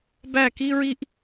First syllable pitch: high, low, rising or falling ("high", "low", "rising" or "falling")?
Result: falling